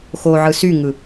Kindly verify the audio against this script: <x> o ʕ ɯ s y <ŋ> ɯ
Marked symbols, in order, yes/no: yes, yes

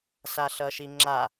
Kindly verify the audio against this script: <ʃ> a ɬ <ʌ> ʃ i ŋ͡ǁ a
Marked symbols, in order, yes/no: no, yes

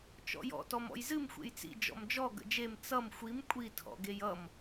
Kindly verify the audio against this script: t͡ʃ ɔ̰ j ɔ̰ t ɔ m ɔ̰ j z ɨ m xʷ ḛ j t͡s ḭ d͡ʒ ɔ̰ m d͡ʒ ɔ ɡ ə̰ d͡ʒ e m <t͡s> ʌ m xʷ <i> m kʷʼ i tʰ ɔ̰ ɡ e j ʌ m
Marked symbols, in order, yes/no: yes, yes

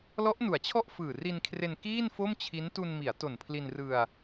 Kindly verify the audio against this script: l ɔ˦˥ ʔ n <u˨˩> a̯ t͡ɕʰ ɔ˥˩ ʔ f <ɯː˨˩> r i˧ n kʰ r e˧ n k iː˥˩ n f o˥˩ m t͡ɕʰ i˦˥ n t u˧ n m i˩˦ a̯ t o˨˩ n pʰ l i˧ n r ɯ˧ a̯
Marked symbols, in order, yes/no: no, yes

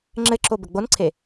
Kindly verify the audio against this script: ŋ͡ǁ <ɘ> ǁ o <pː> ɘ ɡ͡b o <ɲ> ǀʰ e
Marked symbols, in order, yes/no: yes, no, no

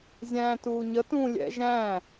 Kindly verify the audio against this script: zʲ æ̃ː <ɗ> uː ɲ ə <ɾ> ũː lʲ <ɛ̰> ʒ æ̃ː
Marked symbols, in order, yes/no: no, no, yes

